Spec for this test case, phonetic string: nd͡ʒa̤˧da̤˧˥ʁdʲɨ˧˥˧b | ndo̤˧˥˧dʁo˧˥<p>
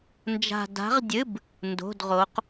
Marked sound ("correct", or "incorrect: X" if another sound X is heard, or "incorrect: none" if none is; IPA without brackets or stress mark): incorrect: q